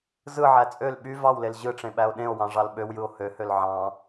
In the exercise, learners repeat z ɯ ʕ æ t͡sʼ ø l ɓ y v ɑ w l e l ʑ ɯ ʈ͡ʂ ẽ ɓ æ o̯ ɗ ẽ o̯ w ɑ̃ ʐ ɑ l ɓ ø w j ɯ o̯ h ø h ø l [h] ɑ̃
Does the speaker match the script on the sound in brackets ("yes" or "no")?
no